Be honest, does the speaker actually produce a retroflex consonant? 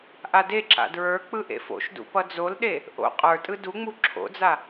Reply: no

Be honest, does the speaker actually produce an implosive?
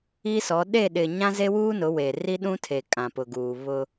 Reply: yes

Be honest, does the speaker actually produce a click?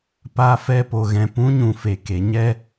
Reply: no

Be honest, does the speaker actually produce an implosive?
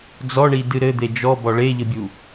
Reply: no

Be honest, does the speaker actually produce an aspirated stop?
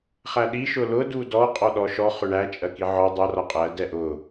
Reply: no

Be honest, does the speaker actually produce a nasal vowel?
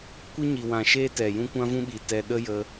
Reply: yes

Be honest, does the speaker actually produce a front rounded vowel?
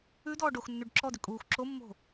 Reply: yes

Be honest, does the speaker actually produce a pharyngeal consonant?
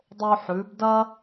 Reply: yes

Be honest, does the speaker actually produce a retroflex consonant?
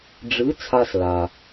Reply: yes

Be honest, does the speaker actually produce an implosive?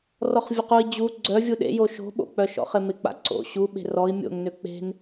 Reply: yes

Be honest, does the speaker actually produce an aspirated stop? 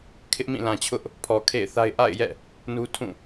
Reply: yes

